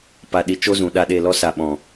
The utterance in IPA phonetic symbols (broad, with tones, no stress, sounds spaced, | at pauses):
p a˧ ɗ i˧ t͡ʃ o˦ z ũ˨ ɗ a˦˨ ɗ e˦˨ l ɔ˦ s a˨ ɓ ɔ̃˨